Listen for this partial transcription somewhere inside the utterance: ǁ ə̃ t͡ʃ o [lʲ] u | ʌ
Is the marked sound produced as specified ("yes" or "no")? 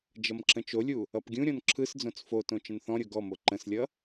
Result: yes